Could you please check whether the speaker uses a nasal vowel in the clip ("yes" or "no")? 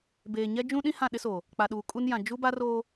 yes